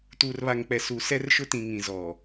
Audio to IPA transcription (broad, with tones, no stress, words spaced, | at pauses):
tuː˨rβa˨ŋk͡pɛ˨ su˨ sɛ˦rʃʊ˦tĩ˨ ŋĩ˨zɔ˨